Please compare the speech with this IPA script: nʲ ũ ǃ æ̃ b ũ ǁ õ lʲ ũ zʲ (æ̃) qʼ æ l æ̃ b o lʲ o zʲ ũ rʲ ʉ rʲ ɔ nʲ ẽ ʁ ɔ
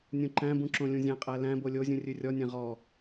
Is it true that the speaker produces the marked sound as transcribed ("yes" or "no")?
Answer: yes